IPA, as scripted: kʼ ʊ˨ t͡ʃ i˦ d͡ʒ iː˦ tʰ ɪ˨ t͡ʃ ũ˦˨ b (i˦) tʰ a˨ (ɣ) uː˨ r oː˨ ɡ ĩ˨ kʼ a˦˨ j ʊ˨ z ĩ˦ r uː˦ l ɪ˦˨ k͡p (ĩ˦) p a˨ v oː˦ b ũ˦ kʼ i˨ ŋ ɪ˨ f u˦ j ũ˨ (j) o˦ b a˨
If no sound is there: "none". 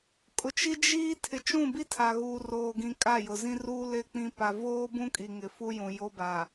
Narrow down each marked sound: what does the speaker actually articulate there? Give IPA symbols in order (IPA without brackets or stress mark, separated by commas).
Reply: i˦, ɣ, ĩ˦, j